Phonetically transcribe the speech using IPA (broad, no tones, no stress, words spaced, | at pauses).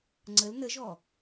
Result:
ŋ͡ǀəl nəʒɔ